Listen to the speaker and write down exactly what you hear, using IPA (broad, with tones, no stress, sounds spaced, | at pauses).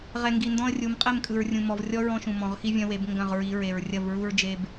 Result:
ʁ ɛ˨ ŋ ɡ i˨ n d ɔ̃˦ ə̯ rʲ u˨˦ m qʼ ɛ˦˨ m kʼ ɯ˨ ɹ rʲ ũ˨ m ɔ˨ v rʲ ɔ˦ ɹ ɔ̃˦ ʃ ũ˨ m ɔ̃˨ ʁ x i˦ vʲ ɐ̃˦ w e˨˦ b ŋ ɡ ɐ̃˦˨ ʁ ɹ i˨˦ ɹ e˨ ɹ rʲ ɐ˦˨ v ɹ u˦ ɹ d͡ʒ e˦ b